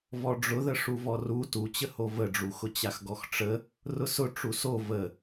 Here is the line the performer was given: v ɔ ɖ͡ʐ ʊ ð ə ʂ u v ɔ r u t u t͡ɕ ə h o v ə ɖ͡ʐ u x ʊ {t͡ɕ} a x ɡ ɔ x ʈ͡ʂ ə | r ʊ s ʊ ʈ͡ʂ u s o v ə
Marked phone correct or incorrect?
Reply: correct